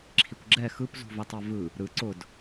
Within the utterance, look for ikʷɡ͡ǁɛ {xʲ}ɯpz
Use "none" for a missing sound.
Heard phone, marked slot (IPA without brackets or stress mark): x